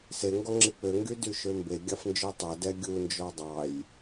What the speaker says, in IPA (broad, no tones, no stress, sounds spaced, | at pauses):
s e ŋ ɡ ɔ ŋ͡ǁ i k͡p ø ŋ ɡ y d y ʃ ø m b e ɡʲ ɑ f n d͡ʒ ø tˤ ɛ d ɛ ɡʲ u n d͡ʒ ɔ dˤ ɑ j